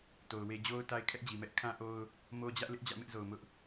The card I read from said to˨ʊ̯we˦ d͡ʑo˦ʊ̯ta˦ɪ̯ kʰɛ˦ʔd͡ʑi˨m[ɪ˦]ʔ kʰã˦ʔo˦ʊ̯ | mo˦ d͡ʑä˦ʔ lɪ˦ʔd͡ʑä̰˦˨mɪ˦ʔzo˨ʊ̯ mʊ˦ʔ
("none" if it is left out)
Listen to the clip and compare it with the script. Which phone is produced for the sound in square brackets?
ɛ˦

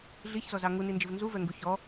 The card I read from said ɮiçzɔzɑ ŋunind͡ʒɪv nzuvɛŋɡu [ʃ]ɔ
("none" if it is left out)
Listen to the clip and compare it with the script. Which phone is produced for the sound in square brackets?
ç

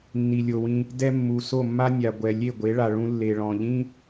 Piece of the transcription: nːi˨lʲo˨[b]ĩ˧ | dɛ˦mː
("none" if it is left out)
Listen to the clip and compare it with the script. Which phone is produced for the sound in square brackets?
w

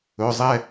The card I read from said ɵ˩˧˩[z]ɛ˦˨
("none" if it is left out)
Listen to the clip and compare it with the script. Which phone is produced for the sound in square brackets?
zˤ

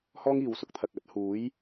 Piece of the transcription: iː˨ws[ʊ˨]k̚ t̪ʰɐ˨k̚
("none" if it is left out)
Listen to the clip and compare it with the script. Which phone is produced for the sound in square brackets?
ʊ˨˥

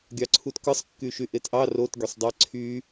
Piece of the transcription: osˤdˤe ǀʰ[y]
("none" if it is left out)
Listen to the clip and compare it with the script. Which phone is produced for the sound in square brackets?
y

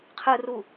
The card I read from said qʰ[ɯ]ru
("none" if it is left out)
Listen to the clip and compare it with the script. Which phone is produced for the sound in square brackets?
ɯ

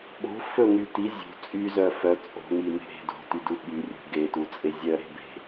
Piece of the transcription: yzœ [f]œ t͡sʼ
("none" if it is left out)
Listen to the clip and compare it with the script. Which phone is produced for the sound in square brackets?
f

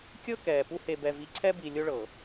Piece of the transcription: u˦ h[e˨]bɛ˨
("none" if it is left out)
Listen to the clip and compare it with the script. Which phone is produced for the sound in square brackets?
e˨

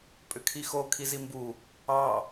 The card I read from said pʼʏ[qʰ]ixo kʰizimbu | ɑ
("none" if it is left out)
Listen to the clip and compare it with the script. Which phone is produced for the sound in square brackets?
kʰ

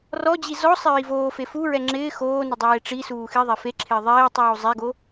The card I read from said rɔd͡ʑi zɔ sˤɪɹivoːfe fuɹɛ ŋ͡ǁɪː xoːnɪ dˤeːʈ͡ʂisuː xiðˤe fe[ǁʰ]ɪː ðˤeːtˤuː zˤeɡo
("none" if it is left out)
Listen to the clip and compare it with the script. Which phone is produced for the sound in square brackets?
ǁʰ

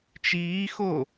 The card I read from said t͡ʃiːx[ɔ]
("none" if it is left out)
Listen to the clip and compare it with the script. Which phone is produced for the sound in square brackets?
o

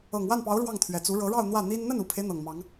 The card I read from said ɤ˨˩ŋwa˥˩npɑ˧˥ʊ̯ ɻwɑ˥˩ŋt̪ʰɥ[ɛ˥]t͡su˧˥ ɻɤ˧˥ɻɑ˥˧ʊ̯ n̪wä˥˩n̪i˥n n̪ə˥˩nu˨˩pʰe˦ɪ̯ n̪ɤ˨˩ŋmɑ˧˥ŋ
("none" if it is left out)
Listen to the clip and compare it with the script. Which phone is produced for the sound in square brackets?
ɛ˨˩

